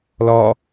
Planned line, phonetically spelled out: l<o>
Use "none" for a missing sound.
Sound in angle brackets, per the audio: ɔ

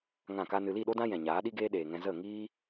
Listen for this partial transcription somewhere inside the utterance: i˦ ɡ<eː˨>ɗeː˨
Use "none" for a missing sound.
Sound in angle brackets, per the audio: eː˦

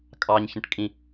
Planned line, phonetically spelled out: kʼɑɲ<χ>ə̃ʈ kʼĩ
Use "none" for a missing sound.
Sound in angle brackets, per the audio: ç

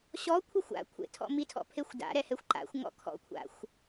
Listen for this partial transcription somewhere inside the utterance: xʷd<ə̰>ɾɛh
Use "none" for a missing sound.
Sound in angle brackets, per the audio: a̰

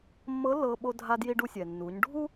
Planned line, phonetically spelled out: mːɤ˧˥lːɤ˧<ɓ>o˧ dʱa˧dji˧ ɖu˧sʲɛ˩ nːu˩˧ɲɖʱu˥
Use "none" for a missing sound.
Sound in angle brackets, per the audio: ɓ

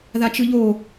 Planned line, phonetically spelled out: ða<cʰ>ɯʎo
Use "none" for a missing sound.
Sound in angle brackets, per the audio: t͡ʃ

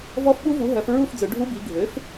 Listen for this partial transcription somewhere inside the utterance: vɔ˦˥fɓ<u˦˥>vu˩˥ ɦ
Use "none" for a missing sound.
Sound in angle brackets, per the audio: u˦˥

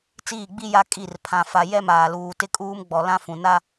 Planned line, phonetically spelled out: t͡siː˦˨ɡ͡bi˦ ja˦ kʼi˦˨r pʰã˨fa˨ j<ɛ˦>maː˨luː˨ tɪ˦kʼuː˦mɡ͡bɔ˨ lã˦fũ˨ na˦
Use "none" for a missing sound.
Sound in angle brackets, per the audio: ɛ˦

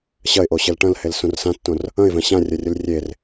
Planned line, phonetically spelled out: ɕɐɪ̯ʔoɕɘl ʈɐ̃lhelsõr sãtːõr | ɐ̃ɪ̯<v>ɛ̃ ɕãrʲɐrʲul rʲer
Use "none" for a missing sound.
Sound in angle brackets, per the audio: v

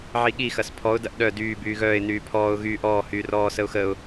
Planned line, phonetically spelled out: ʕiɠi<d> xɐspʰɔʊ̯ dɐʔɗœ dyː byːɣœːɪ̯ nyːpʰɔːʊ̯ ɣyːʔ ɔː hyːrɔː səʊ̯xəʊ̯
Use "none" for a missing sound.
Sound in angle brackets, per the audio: none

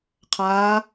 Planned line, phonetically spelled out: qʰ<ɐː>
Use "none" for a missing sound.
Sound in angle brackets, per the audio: aː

